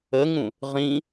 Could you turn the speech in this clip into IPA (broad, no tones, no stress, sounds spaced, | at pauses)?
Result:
ə ŋ ũ | ʁ ĩ